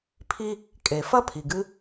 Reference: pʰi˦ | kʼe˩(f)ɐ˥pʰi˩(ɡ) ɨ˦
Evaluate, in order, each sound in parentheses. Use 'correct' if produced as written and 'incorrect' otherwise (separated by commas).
correct, correct